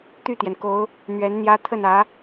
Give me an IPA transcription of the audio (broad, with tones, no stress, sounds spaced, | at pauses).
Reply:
t̪ y˥˩ t̪ j ɛ˩ n k o˧˥ ʊ̯ | n̪ ɥ ɛ˧˥ n n̪ j ä˥ t̪ʰ ə˥˩ n ä˧˥